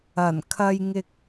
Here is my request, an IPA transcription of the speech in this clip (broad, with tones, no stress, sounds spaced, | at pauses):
ɐ˨˩ n kʰ ɐ˧ j ŋ ɪ˧ k̚